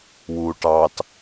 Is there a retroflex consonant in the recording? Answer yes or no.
yes